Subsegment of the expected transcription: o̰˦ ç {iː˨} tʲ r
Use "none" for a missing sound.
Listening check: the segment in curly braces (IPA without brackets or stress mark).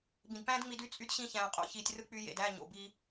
iː˨